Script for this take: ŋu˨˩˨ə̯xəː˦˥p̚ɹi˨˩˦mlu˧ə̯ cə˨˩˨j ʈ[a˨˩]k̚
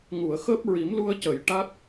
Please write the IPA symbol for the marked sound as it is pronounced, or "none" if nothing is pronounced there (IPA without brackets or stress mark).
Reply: a˦˥